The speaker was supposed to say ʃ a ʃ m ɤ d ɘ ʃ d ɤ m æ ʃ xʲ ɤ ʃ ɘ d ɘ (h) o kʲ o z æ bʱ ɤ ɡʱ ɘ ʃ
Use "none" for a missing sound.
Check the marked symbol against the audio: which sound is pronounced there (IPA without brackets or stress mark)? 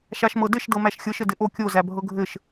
ʔ